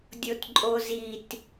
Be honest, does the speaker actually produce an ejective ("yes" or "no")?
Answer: yes